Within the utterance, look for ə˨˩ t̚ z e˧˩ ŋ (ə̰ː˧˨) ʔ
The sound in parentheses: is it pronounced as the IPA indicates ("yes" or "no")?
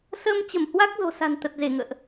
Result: yes